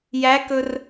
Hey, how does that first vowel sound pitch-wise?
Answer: rising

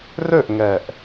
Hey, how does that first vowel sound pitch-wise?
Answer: falling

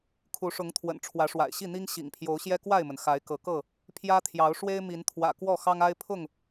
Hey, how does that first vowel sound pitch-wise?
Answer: rising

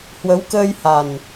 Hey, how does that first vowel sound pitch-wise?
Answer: rising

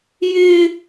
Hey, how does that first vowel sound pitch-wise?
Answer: high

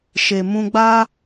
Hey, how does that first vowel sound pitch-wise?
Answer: low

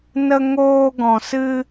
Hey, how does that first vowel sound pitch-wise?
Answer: high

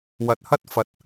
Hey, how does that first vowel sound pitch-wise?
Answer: rising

